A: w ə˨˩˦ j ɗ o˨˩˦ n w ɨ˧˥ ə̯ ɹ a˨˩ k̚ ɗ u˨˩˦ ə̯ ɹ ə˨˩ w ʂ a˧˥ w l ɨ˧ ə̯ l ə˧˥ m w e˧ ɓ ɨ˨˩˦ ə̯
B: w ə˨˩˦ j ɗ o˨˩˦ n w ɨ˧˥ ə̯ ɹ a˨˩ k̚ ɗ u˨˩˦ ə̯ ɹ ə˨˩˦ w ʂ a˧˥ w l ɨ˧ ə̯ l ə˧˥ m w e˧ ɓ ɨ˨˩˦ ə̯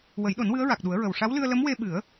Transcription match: A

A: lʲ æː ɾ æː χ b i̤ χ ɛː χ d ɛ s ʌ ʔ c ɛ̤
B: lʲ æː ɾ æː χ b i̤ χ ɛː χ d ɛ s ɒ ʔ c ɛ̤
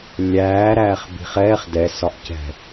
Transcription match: B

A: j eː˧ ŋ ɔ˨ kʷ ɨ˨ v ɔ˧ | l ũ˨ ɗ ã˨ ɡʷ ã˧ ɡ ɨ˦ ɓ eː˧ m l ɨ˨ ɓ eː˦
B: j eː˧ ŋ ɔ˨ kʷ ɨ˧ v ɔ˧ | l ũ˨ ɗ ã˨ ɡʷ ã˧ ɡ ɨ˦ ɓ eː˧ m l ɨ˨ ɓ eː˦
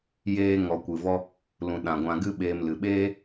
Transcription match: A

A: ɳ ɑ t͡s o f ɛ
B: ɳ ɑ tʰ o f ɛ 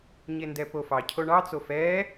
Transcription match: A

